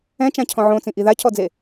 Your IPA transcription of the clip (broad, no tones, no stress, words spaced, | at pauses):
ɛ̃t͡ʃãcʰɔ̃ ʕõt͡sĩʔi ðacʰɔd͡ze